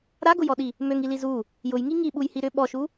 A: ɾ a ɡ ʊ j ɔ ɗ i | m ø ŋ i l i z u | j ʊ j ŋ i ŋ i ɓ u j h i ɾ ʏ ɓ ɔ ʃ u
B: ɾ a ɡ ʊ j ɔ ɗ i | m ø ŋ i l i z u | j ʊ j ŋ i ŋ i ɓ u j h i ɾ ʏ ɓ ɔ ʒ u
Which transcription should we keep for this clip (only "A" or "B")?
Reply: A